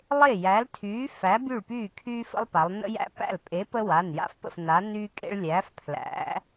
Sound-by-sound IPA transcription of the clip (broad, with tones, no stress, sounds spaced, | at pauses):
lˠ e˥˩ j æ˨˥ l tʰ yː˨˥ f æ˨˥ b y˥˩ ɭ p yː˥˩ kʰ yː˦ f ə̰˦ lˠ p a˩˧ lˠ n ə̰˦ j æ̰˦ p æ̰˥˩ l pʼ e˨˥ p ə˦ w a˩˧˩ n j a̰˦ f p ə̰˥˩ f n a˨˥ n yː˦ kʼ ḛ˦ ɭ lʲ æː˨˥ f pʰ l æ̰˨˥